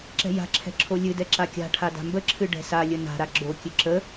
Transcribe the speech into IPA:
ǁɛ̤ja̤ǁʰɛ̤ ǁʰolʲɨdɛ ǁakʲa̤ʈʰa da̤mbəǁʰɨ ɖɛ̤salʲə na̤ɾa ɡ͡ǁokʲɨ ǁə

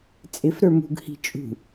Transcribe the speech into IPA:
t͡sʼɪfɾə˞ mṳɡhi̤ t͡ʃʼṳ

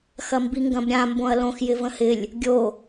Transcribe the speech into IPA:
xɐmbiŋɡɐ̃bɾʲã mbõɐ̯lõx jɪvə̃hɪlʲ | ɡʲo

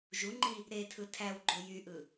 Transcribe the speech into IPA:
ʒuŋ͡ǃi | ɾetʰɯ tʰæwɡ͡ǃo jyʔɯ

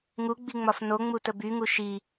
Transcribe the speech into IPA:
ŋuɡ͡biŋ͡mɒf noŋ͡mutə byŋu ʃi

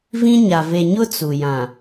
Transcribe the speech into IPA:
vĩ˦ɲa˨ ve˨ɲʊ˦ t͡su˨jã˨

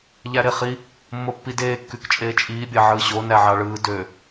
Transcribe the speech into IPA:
ʎæɾeχi | mːopːideː kːykt͡ʃʼeːt͡ʃʼiː bʲɑʕɯːɕo næʕɑɭɯː dø

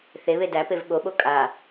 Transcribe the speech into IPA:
θeβe dæpev ɠoɓo kʼa

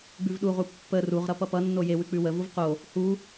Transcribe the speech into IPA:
ɡ͡bʉvɗuʁu pːə ruʁɾʌ pʌpʌnːo je wʉk͡pʉwəvuv qo | hu

